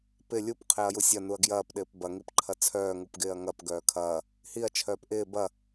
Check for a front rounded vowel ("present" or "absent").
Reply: present